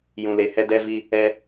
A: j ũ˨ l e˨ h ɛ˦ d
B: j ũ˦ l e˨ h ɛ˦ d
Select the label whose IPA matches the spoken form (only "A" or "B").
A